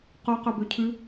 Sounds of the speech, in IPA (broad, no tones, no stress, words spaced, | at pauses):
qo qøbøcʰʉ